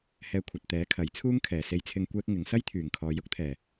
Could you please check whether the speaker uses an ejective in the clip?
no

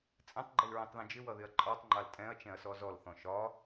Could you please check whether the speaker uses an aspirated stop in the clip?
no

